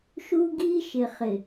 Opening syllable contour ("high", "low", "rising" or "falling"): high